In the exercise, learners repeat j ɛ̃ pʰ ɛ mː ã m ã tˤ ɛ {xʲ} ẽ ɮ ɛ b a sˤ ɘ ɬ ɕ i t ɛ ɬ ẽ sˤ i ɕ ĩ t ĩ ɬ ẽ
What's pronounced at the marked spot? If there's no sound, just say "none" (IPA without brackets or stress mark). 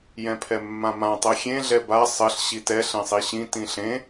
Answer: xʲ